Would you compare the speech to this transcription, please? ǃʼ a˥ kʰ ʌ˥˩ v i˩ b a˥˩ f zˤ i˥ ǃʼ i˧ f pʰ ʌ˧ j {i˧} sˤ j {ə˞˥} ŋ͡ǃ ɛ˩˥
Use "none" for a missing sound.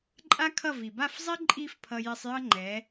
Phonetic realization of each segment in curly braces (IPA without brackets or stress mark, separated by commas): i˧, ʌ˥